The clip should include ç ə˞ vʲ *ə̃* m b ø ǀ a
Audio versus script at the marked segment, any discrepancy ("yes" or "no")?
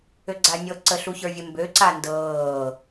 yes